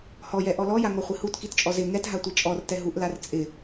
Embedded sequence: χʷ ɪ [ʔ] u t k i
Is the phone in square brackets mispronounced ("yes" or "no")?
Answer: yes